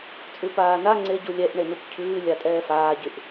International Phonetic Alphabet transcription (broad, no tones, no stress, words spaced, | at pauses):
t͡sʼʉpaːna ŋ͡ǀeɟu lʲɛʔ ɳenupcʰʉː lʲatʼɛːfaːɟyʔ